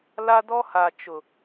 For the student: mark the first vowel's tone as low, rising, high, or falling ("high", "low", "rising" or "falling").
high